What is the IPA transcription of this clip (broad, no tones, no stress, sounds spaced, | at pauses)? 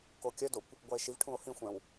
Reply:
k o kʲ œ d o kʷ | ɡʷ æ e̯ ʃ i v ʈʰ ũ o̯ h ĩ xʷ ɛ̃ w